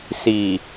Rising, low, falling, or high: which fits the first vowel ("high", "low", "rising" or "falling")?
low